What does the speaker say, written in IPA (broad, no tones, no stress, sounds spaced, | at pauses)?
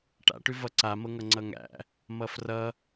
ʈ a̰ ʈ ʉ v ʌ ǀ a m ɤ ŋ ʌ ŋ͡ǀ ʌ ŋ æ̰ | m ʌ f r ʌ